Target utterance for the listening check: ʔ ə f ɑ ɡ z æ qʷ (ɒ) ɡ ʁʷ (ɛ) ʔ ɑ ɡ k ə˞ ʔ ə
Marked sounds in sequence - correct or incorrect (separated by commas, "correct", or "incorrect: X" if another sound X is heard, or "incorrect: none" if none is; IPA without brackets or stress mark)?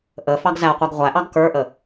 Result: incorrect: ɑ, incorrect: æ